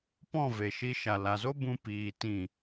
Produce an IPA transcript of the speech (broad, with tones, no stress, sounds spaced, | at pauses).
p ɔ̃˦˨ v e˨ ʃ i˧ ʃ a˨ l a˨ z o˦ b ũ˧ p iː˧ t ĩ˦˨